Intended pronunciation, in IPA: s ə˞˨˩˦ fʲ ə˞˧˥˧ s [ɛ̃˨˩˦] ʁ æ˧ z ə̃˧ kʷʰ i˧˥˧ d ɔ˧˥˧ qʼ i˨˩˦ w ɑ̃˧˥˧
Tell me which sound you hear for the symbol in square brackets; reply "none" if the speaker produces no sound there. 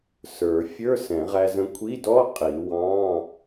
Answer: ɛ̃˨˩˦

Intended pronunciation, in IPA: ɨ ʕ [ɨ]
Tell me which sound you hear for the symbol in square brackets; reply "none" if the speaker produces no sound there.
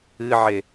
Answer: e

